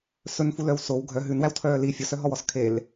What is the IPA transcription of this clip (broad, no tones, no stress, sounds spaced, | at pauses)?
s ɵ n f u l œ w s o w ɡʱ œ ɦ ʉ n w æ w tʰ œː l i fʲ o s œ ɦ ɔ w ɔ s kʰ e l